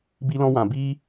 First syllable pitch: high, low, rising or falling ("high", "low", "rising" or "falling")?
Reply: high